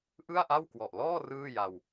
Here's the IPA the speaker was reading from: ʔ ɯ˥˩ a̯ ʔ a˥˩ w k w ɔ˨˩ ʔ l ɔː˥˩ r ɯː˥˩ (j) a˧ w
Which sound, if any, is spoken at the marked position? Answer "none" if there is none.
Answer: j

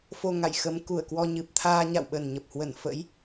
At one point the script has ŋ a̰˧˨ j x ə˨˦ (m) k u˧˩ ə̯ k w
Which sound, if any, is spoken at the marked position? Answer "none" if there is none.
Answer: m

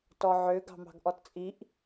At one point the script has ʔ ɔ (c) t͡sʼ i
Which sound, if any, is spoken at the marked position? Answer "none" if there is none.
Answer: t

